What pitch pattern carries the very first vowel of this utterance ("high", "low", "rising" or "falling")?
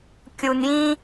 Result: low